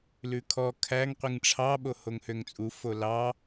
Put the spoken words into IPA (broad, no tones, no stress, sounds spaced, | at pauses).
l ʉ kʰ ɔ kʰ æ ŋ qʷ i ŋ ʈ͡ʂʰ ɑ ɓ o h o ŋ h ø ŋ t͡sʼ u f o l ɑ